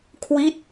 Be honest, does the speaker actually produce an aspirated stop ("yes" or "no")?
yes